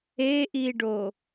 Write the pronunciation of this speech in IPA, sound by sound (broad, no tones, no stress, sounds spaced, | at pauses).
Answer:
e ʔ i ɖ o